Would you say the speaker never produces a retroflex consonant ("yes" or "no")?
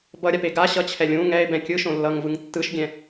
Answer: yes